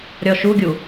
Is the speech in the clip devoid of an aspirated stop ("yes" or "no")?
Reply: yes